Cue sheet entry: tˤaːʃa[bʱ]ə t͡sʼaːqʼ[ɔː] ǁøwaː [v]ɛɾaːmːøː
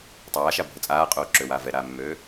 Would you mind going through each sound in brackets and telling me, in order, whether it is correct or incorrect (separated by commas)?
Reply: correct, incorrect, correct